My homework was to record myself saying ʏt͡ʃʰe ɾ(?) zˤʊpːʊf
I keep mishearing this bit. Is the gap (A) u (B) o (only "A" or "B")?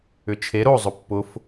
B